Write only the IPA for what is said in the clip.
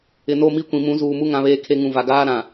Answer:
ɪ˨no˦˨mi˦kʷĩ˨ mũ˨˦zuː˨mu˦ ŋã˨βeː˨kʰe˨ ŋũ˨va˨ɡaː˦ ɾã˨

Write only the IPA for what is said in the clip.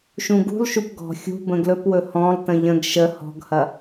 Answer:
ʃũɡṳlˠʃup ɡɔ̤ xʲṳ bə̃ɡlɵpwɵ hɔ̃lˠtə̃ ʎə̃ɡ ʃə hɔ̤ɡhɐ

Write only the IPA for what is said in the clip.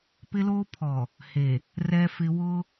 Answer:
pɪ˦loː˦pʰɔ˨ | he˨ | rɛ˦fɪ˦ wʊ˦

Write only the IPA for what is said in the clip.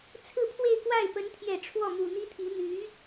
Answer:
t͡sʰɹ̩˥˧pʰwe˥˧ɪ̯kwa˥˩ɪ̯ pə˧˥nt̪ʰjɛ˨˩ ʈ͡ʂʰwɔ˥˩mu˨˩n̪i˥t̪ʰi˧˥ n̪y˧˥

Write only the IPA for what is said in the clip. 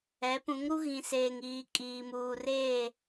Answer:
ɛ˨˦pũ˨˦ŋɾu˦ ɣĩ˨seː˨ŋiː˨ kʼiː˨muː˨reː˦˨

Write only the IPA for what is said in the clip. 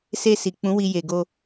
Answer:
se˧si˨ k͡pũ˨˦wi˧ je˨ɡo˧

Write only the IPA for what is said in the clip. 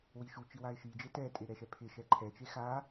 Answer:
wiʃut͡ʃi waɪ̯ʃid͡ʒe tɛtʼe ɾɛʃɛpʰɪʃɛ ǃʰɛt͡ʃe xa

